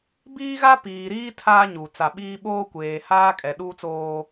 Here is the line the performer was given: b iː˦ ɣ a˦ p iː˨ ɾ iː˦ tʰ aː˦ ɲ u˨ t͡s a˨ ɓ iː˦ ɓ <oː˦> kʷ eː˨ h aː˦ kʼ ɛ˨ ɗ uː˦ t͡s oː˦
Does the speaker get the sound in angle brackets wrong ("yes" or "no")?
no